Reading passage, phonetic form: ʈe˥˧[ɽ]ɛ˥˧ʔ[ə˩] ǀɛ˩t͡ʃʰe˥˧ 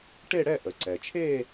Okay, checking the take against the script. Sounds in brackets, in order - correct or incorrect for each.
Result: correct, correct

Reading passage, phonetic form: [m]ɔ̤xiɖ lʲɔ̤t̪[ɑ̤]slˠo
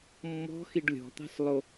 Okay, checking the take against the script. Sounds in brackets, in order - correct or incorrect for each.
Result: incorrect, correct

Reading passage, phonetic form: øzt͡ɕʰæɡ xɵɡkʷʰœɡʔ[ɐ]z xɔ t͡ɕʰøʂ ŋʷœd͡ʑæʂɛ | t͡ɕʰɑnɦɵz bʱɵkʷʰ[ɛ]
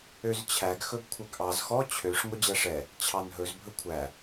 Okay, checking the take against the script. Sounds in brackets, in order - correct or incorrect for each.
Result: incorrect, incorrect

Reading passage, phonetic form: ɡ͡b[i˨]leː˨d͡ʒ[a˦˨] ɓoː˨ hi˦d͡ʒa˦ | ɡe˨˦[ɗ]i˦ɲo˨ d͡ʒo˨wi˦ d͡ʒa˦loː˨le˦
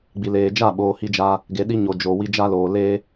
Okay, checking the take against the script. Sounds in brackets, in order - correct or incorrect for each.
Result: correct, correct, correct

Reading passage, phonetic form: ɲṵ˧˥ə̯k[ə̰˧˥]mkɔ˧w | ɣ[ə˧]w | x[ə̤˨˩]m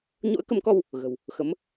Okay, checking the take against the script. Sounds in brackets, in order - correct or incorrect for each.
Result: incorrect, incorrect, incorrect

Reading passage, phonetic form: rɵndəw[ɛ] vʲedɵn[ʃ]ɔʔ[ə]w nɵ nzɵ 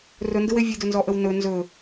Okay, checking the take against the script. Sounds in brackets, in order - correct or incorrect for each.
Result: incorrect, incorrect, correct

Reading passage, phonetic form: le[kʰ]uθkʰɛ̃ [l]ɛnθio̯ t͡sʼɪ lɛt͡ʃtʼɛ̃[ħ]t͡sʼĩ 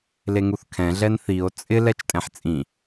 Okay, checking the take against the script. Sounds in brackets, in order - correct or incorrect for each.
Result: incorrect, incorrect, correct

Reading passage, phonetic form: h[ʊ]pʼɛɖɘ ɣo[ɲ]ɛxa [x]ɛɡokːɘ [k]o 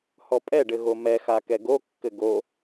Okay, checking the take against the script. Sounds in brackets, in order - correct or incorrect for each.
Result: incorrect, incorrect, incorrect, incorrect

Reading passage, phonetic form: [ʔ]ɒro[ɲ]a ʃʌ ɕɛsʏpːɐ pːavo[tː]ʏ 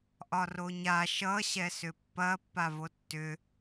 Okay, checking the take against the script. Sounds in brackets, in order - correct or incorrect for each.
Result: correct, correct, correct

